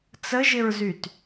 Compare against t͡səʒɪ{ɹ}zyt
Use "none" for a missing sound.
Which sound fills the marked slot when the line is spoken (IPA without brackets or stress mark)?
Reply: ɹ